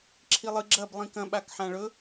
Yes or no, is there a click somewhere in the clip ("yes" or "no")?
yes